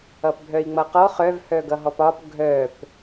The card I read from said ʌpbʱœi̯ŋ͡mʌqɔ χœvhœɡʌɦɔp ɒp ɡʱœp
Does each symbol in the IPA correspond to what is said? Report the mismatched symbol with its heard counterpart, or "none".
none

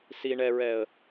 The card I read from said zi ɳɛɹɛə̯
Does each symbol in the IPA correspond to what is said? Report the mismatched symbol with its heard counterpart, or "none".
z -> s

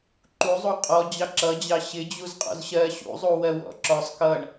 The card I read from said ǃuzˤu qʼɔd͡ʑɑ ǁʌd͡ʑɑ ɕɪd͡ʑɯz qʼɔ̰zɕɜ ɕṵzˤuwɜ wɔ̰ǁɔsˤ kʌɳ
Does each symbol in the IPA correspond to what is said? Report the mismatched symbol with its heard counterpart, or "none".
ɯ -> u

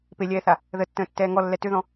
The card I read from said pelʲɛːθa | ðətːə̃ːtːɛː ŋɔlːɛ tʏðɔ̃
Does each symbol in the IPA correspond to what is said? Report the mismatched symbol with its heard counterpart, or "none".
none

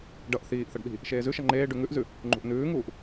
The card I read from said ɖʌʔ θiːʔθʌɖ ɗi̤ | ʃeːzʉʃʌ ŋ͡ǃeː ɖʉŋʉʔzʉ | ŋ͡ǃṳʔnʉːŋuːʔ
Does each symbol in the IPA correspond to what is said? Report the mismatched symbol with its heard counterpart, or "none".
none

